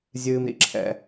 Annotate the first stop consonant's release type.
click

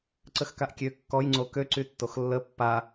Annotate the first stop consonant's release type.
click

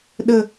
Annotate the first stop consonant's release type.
implosive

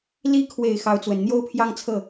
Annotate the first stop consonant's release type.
aspirated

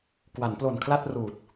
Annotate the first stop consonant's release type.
plain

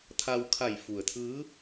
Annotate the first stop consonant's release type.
aspirated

